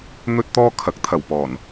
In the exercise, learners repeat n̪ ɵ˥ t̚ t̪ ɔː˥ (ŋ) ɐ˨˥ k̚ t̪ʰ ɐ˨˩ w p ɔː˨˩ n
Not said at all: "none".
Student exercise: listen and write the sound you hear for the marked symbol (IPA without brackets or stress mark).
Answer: kʰ